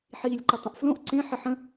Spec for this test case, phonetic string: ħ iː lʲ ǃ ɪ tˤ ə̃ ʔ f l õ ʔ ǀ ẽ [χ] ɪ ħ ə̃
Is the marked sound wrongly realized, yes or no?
yes